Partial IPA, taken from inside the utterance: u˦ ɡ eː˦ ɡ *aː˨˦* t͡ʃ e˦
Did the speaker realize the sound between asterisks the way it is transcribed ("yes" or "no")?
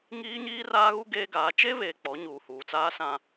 yes